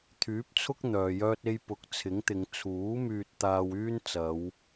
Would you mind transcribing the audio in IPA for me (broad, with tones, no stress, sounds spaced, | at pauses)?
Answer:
t̪ʰ yː˨˥ p̚ t͡sʰ ʊ˥ k̚ n̪ œː˨ j œː˥ t̚ e˥ j p ʊ˨˥ k̚ t͡sʰ ɪ˨˥ ŋ t̪ ɪ˨˧ ŋ t͡sʰ uː˨˥ m yː˧ t̚ t̪ aː˧ w yː˥ n t͡s ɐ˨˧ w